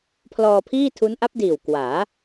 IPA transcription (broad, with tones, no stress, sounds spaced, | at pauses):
pʰ l ɔː˧ pʰ iː˥˩ tʰ u˦˥ n ʔ a˦˥ p̚ d iː˨˩ w k w aː˩˦